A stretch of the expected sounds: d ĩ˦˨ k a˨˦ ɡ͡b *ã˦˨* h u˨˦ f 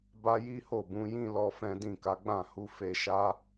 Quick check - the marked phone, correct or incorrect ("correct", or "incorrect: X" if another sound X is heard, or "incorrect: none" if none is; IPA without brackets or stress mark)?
correct